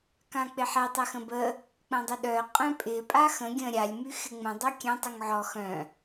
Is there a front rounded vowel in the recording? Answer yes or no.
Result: yes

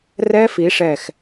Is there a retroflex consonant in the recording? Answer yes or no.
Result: yes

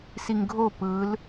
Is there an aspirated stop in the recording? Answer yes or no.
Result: no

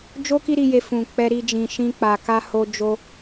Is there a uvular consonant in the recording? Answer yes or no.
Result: no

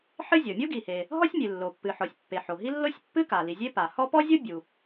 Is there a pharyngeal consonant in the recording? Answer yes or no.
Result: yes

